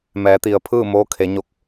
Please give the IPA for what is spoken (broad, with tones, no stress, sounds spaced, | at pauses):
m ɛː˩˧ t̪ i˩ ə̯ pʰ ɯː˥˨ m oː˧˥ kʰ e˩˧ ɲ o˧˩ k̚